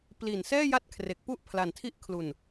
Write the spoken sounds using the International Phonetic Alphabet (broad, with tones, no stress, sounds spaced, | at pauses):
p l i˨˩ n s ɛː˥˩ j a˥˩ t̚ kʰ r e˨˩ k̚ p u˥˩ ʔ pʰ l a˨˩ n tʰ i˥˩ ʔ kʰ l u˨˩ n